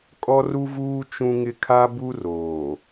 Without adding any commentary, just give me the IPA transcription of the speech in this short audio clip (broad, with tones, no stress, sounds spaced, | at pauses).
kʼ ɔ˦ r u˦ v uː˦ t͡ʃ ũ˦ ŋ ɪ˦ kʰ a˦ b u˦ r oː˨